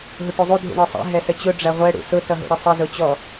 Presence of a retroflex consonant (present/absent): present